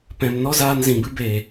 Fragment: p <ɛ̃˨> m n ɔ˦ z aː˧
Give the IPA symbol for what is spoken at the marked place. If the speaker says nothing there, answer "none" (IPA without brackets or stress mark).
ɛ̃˨